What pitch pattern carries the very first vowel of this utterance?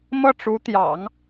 falling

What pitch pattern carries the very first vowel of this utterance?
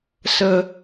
high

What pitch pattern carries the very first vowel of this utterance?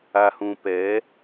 low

